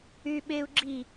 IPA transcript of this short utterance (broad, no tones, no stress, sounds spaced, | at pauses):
yː ɓ eː u̯ ɡ͡ǁ i